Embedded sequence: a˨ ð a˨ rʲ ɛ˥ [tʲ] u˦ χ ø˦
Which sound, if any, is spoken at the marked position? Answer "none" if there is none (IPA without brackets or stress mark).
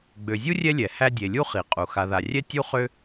tʲ